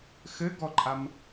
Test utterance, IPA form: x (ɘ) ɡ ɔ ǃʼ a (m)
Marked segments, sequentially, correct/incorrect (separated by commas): correct, correct